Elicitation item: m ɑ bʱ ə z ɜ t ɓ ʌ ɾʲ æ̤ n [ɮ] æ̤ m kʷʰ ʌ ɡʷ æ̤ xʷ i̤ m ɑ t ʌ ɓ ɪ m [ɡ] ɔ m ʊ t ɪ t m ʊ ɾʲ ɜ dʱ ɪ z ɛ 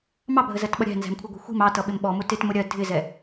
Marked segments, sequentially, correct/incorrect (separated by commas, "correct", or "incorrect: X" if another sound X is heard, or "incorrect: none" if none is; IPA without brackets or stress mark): incorrect: z, incorrect: ɓ